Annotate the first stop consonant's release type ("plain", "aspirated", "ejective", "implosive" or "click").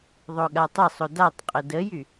implosive